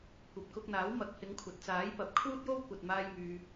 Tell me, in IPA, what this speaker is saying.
kʷ ɐ˨ p̚ k ʊ˧ k̚ n̪ aː˨˥ w m ɐ˨ k̚ h ɪ˨˧ ŋ kʷʰ ɐ˨ t̚ t͡s aː˨˥ j p ɐ˨ p̚ kʰ uː˥ t̚ j o˥ w kʷ ɐ˨ t̚ m aː˧ j m yː˨

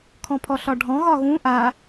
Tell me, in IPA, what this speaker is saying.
kʰ ɔ̃ pʰ ɔ ɬ ɒ ɖʱ ɔ̃ ɣ ɒ ɣ ũ ʔ a

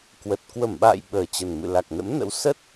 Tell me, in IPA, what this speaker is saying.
k w ə˨˩ t̚ k w ə˧˩ m ɓ a̰ː˧˨ j ɓ əː˨˩ t͡ɕ ə˨˩ n m ɨ̰˧˨ l a˨˩ k̚ n ə̰˧˥ m n ə̰˧˥ w s ə˦˥ t̚

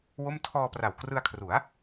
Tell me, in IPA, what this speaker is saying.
w o˥˩ m tʰ ɔː˧ p r a˨˩ w k r ɯ˧ a̯ kʰ r u˩˦ a̯

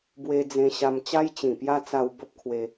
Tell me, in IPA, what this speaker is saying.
b w e˧ d͡z ẽ˧ ɕ a˧ m t͡ɕ a˦ j t͡ɕ ĩ˨˩ p j a˦ t͡s a˧ w b ə˦ p̚ kʰ w e˧

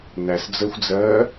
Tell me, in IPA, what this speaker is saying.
n æ s d͡z əː xʷ d͡z ɜː

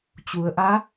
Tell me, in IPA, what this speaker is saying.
t͡ɕ u˩˧ ə̯ ʔ a˧˥

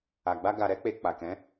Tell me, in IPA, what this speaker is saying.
a˨ ɡ͡b a˧ ɡ a˨ ɾ ɛ˧ k͡p e˨ k͡p a˨ k ɛ̃˨˦

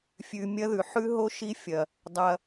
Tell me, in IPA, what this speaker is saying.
fʲ ʉ˨ mʲ ɐ˦ ð ʉ˨ ħ ʉ˦ ɦ o˦ ʃ i˦ fʲ ɐ˨ | dˤ ɐ˧

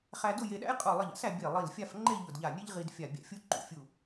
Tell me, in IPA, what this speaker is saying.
χ æ˧ d ʊ˥˧ j e˧ ɗ æ̰˥ j qʼ u˧˩ lˠ ɘ˧˩ ʎ a̰˥ s æ˧ bʲ e˧˩ lˠ i˧˩ l fʲ a˥˧ f ŋ͡ǃ e˥˧ ʎ ʊ˧˩ d ʎ a˧˩ nʲ e˥ ʎ ʁ i˧ d fʲ a˧˩ bʲ æ̰˧ fʲ u˥ ǃ ṵ˧˩ fʲ u˧˩

